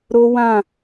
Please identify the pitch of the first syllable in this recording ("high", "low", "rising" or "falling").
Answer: high